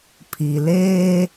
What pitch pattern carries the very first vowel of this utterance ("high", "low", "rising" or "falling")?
low